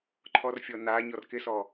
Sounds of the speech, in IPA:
ǃʰ ɔ r fʲ ɔ n a ɲ ɔ r k ɪ s ɔ

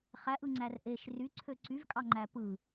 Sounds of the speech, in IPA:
χ æ ʔ ɯ ŋ͡ǀ æ r ʔ e ʃ r y ǀʰ ø ǀ y v kʼ ɑ ŋ͡ǃ æ p ɯ

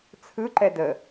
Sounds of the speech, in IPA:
t͡sʰ ɯ ǃ ɛ d ə

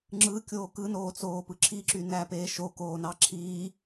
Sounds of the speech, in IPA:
ŋ͡ǁ ɯ kʲ oː k ɯ n oː t͡s oː p ɯ ǁʰ i ǁ y n æ p eː ʃ o k oː n ɑ ǁʰ iː

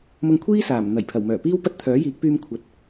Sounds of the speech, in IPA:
m ʊ˧ ŋ kʷʰ iː˥ s aː˨˩ m n̪ ɐ˨˩ j pʰ ɐ˨˩ w m œː˨˩ p iː˥ w p ɐ˥ t̚ t̪ʰ œː˨˥ j iː˨˥ k̚ p yː˧ m kʷʰ ɐ˨ t̚

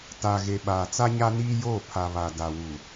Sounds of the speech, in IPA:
t a˨ ɣ e˨ ɓ aː˨ t͡s a˦ ɲ a˦ n iː˦ j oː˦˨ pʰ a˨ β a˨ d a˨ w u˨

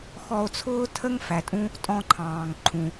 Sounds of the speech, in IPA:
x ɔ˧ o̯ t͡sʰ ʊː˥ tʰ ə˥ ŋ f æ˩ tʼ ũ˥ | tʼ ɔ̃˧ ǃʰ ɑ̃ː˩ ŋ ǃʰ ũ˩

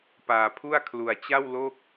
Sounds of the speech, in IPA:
p aː˧ pʰ u˥˩ a̯ kʰ l u˧ a̯ t͡ɕ a˥˩ w l o˥˩ k̚

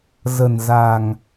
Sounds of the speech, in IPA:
z ə̤˨˩ n z a̤˨˩ ŋ

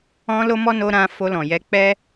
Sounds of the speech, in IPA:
ɔ̃˦ l o˦ m ɔ˦ n o˧ ɾ ã˧ f o˧ l ɔ̃˨ j ɛ˨˦ k͡p ɛ˦

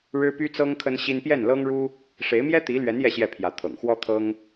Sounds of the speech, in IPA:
ɻ ɻ̩˥ p y˥ t͡s ɤ˥ ŋ kʰ ə˥ n ɕ i˥ n p j ɛ˥˩ n l ɤ˥ ŋ ɻ u˥ | ʂ e˧˥ ɪ̯ m j ɛ˥ t̪ i˧˥ l ɥ ɛ˧˥ n j ɛ˥˧ ɕ j ɛ˥˩ pʰ j ä˧˥ t̪ʰ ɤ̰˨˩ ŋ x w ɔ˥ t̪ʰ ɤ˥ ŋ

